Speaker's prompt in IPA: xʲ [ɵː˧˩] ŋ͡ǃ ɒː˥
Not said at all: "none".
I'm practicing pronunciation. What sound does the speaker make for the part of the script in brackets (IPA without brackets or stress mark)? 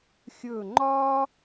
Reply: ɵː˧˩